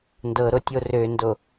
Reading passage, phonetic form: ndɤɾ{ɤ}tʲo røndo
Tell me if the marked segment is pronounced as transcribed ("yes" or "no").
no